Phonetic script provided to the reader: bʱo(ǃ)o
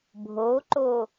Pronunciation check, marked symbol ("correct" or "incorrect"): correct